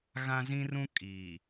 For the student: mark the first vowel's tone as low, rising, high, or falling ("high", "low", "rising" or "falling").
high